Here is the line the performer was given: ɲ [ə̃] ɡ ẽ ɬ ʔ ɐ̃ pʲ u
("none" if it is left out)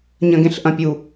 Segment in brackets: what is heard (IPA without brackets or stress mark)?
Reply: ɐ̃